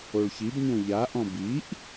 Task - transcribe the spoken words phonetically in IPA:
o ɭ ç i b ɲ õ ʎ a ʔ ɔ̃ b i ʔ

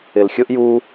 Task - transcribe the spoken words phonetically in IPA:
ɪ l xʲ ʊ ʔ j u

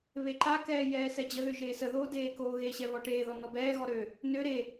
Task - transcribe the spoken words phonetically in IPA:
β e ǃ a k ɛː j ɛː s ɛ d͡ʑ ə ð ø ʒ eː s ə ð oː d eː k oː ɣ e ɕ ɛ β ɔ ʈ eː ð ɔ n ɔ b ɛː ɣ ɔ ɾ ø | n ø ɾ e

